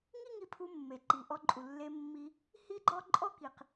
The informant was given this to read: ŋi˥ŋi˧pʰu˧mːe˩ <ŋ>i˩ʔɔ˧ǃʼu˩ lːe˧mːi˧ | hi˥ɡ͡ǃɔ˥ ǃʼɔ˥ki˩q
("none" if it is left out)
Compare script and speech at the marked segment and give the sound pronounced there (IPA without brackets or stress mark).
ǃ